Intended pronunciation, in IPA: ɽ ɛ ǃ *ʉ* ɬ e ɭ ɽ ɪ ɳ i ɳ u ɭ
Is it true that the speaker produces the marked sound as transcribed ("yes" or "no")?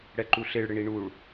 no